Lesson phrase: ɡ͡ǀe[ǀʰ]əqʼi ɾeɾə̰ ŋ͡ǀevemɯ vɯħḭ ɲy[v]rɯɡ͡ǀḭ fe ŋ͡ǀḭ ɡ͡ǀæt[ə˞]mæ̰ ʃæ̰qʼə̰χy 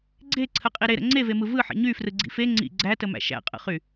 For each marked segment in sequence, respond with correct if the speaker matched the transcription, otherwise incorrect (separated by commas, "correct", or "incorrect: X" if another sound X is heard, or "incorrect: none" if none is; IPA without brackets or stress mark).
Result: correct, incorrect: f, incorrect: ə